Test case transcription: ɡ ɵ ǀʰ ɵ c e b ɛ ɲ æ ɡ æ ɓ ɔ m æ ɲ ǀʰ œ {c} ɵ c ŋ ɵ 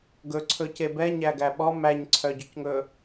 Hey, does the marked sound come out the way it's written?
no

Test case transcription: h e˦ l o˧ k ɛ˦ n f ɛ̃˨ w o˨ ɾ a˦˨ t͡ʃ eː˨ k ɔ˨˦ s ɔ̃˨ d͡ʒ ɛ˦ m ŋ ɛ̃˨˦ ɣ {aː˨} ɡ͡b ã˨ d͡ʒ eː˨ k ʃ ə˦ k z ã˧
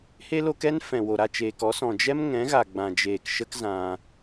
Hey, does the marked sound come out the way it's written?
no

